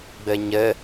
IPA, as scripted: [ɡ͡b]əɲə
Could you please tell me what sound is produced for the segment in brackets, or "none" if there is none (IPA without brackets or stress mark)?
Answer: ɡ͡b